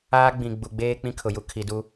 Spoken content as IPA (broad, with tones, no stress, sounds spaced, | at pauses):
aː˦ ɡ͡b ĩ˨ ɡ͡b u˨ ɡ͡b eː˦ k͡p ĩ˦ kʰ ʊ˨ j u˦ kʰ i˨ d u˦